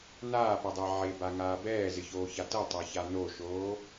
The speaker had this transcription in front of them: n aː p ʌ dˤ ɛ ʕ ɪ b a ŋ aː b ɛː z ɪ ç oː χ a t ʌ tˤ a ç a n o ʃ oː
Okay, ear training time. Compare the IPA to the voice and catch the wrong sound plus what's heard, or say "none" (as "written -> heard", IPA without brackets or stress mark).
χ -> ç